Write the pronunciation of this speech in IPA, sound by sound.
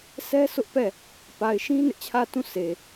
sʰ ɛ˦ s ʊ˦ ʔ p ɛ˦˨ | p a˨ ɪ̯ ʃ ĩ˦ n ɪ˦ ʔ t͡ɕʰ ä˦˨ t ũ˦˨ sʰ e˨

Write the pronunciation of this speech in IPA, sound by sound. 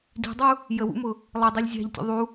d i̤ dˤ u | j ə w ṵ m ʊ | lˠ ɪ dˤ i lʲ zʲ æ̤ ʎ tʲ ṵ ðˤ u

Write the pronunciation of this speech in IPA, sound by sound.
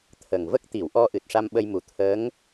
t̪ʰ ə˨˩ ŋ v ə˦˥ k̚ t̪ i˨˩˨ w ʔ ɔ˧ ʔ ɨ˨˩ t̚ ʂ a˧ m ɓ ə˧ j m u˨˩ t̪ʰ əː˧˥ ŋ

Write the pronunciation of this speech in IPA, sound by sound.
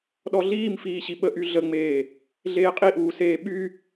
ɗ ɔ ɮ iː m f iː ɕ i ɓ ə ʔ y ɮ ə ŋ͡m eː | ɮ eː qʼ i ʔ uː s eː ɓ y

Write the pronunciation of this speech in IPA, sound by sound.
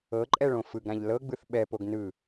ɤ ǃʼ ɛ ɭ õ f ɯ ɡ ɾ ã ʎ l ɤ ɡ͡b ɯ θ ɓ ɛ p o ɡ n ɯ

